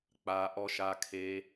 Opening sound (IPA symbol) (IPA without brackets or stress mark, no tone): k͡p